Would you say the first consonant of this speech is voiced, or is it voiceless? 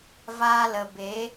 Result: voiced